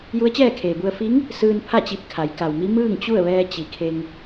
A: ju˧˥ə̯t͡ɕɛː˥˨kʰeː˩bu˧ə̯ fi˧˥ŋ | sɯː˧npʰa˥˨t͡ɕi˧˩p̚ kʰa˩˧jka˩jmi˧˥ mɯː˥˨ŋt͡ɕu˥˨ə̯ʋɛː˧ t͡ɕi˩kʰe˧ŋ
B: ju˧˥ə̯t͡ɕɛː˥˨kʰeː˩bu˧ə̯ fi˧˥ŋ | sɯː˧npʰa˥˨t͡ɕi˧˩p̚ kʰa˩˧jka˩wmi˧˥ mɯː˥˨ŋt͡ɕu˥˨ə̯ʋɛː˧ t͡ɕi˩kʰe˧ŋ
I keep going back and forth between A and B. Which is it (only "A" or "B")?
B